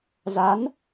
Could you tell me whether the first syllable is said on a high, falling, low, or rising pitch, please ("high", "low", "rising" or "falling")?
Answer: rising